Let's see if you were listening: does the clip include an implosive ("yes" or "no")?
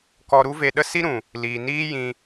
yes